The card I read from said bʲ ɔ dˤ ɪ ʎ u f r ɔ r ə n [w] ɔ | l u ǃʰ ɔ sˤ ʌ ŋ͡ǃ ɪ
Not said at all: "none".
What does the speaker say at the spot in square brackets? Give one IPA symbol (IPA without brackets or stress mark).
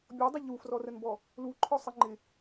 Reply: b